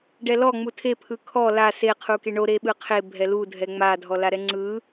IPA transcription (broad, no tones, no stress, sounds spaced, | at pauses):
ɖ ɛ l ɔ ŋ͡m u tʰ e pʰ ɯ kʰ ɔ l a s e qʰ u k e ɳ o ɾ e ɓ ɯ qʰ e bʱ ɛ l u dʱ ɛ ŋ͡m a dʱ ɔ l a ɾ ɛ ŋ͡ǀ ɯ